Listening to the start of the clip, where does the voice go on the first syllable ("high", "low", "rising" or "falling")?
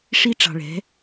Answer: high